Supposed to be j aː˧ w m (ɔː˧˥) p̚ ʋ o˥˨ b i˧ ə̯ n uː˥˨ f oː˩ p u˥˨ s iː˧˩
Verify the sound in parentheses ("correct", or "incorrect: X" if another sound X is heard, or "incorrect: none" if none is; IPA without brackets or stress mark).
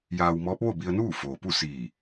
correct